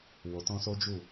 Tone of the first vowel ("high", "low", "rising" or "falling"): low